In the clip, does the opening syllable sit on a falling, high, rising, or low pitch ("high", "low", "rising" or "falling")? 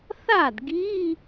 falling